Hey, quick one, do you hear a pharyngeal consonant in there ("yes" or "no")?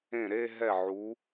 yes